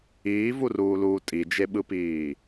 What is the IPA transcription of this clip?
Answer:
iːvuruːluː tʼid͡ʒeɓɯpiː

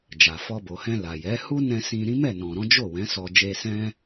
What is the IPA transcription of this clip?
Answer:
d͡ʒa˨fɔ˧ bo˨hɛ̃˧ la˨jɛ˨˦ hu˦nɛ̃˧ sĩ˧ɾĩ˦ mɛ˦˨nɔ̃˨ɾɔ̃˨˦ d͡ʒo˦˨wɛ̃˨˦ sɔ˧ d͡ʒe˧sɛ̃˦

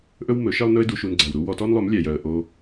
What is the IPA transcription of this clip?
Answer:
ʔɵ˦wmɵ˨˦ʃe˦lˠnɵ˦ɪ̯ du˧ʃu˧nɡ͡ǀæ˨wɾu˦ wɔ˧tɔ˦nlˠɵ˨˦m lʲæ˨jœ˨ə̯ ʔo˧

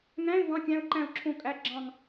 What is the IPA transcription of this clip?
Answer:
ŋæ̃˧˥˧ɪ̯ vɑ̃˧˥˧kʲæ̃˧˥˧ʊ̯ǃæ̃˦˨ʊ̯ǁʰõ˦˨ kʼæ˧˥˧ ɡ͡ǁɑ̃˦˨ŋ

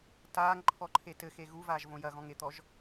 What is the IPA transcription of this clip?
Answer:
taːŋǃʰɔǃʰe tɘxe ɣuvaːʒvõ jɐɣɔ̃ŋet̪ɔʒ

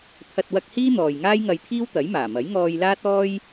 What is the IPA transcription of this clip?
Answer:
t̪ʰɐ˧t̚wɐ˧k̚hiː˥ n̪ɔː˨jŋaː˥jŋɐ˧jt̪ʰiː˥w t̪ɐ˨˥jmaː˨˩mɐ˨˥j ŋɔː˧j laː˥t̚ɔː˥j

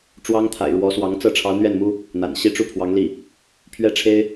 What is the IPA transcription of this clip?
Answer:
ʈ͡ʂwɑ˥ŋt̪ʰa̰˨˩ɪ̯ɻwɔ˧˥swɑ˧˥ŋ t͡sɤ˥˩ʈ͡ʂʰɑ˧˥ʊ̯n̪ɥɛ˥˩nmu˥ | n̪a̰˨˩n ɕi˥ ʈ͡ʂu˥˩pʰwɑ˧˥ŋli˥˩ | pʰɥɛ˥ʈ͡ʂʰe˥ɪ̯

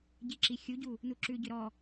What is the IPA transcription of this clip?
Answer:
ɟiǁi xʲuɟu | nuǁʉɟʏ ɾɔ

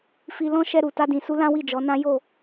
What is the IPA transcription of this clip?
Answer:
fi˧lɔ̃˦ʃɛ˧ ɾu˨ta˧dĩ˨su˧ lã˦wi˦˨d͡ʒɔ˨˦nã˦ jo˦˨

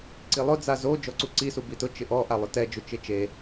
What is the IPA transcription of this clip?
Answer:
ǀilˠʊ d͡zazo d͡ʒɔǀuǀisu bitʊ t͡ʃɪʔɔʔa lˠʊtɛd͡ʒʊ t͡ʃɪt͡ʃe

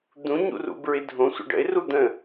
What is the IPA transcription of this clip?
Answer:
d̪ũɲṵrṵbɹɪ dʱõsʷə̰ ɖə̰ɪ̯ru d̪ə̃

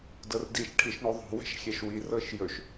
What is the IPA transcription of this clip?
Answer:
dɤrdiʃ ʈʰiʃɳoðˤo̤ wɛ̤ʃxʲɛʃwi rɤʃjɵʃ

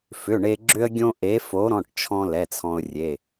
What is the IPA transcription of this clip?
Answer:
fʏ˩˧˩ɳe˧ ɡ͡ǁʏ˧ə̯ɡʲõ˧ ʔe˨˥fo˨˥ɾɔ̃˩˧˩ʈt͡ʃʰɔ̃˧ lɛ˩˧˩t͡sʰɔ̃˧ʊ̯ rʲe˩˧˩

